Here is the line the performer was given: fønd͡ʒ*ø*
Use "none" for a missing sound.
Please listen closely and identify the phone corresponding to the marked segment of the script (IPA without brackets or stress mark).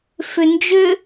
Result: ø